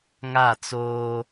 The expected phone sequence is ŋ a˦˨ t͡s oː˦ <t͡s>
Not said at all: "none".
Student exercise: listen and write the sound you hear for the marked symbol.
none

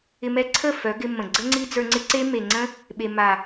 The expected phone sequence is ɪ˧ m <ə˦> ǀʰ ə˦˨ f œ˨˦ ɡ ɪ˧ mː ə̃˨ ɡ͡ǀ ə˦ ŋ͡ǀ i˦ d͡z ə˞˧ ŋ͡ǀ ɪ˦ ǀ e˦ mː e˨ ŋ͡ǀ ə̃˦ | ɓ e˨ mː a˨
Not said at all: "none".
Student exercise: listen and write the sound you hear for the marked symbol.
ɛ˦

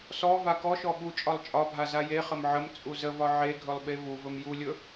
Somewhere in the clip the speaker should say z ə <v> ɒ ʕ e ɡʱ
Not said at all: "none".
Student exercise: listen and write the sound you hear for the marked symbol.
v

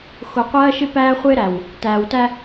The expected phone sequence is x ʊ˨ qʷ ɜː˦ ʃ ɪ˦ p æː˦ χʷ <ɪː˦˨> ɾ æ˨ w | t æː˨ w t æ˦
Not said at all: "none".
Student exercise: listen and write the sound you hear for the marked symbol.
ɪː˦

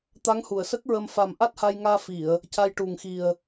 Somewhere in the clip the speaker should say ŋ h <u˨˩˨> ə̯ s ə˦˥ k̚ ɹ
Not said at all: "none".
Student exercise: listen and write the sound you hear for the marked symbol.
u˨˩˨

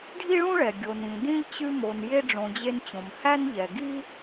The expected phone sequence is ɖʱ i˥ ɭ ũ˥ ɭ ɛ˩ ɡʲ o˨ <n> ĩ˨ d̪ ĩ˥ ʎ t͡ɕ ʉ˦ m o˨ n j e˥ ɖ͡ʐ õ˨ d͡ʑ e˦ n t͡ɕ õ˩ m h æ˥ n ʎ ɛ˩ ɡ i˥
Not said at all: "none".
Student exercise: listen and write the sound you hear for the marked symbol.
n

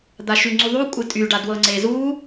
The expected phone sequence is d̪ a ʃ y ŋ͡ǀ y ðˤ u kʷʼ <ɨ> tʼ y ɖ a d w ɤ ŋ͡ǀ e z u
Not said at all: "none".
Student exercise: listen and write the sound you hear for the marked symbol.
ɨ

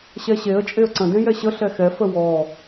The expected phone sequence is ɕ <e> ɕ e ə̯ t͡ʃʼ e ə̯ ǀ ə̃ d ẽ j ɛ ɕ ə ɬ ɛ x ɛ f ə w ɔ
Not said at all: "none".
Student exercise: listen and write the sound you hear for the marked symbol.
ɛ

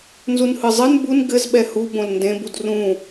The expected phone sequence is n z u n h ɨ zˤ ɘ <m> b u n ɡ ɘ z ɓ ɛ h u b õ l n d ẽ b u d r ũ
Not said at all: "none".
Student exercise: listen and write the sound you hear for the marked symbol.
n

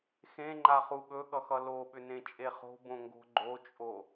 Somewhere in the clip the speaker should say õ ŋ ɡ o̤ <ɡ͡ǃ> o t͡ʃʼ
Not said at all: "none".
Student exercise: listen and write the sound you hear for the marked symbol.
ɡ͡ǃ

